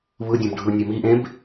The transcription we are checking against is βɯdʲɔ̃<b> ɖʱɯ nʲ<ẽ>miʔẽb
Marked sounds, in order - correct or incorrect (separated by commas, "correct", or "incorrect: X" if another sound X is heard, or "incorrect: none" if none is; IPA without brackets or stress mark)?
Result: correct, incorrect: e